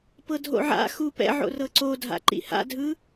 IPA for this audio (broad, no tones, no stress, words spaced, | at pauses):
pɤdʱo̰ʕa̰ xupɛ̰ ʕo̰rɤǀodʱa̰ ǃḭha̰dʱɯ